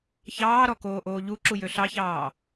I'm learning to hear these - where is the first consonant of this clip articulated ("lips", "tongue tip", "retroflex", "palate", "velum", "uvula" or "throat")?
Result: palate